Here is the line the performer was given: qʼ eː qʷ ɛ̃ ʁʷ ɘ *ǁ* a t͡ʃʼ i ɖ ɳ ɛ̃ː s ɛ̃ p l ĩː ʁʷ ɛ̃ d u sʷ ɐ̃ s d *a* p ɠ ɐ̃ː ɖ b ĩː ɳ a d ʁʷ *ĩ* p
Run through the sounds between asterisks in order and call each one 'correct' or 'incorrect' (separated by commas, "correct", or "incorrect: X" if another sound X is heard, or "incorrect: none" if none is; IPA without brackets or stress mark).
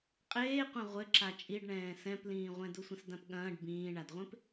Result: correct, incorrect: ã, incorrect: ẽ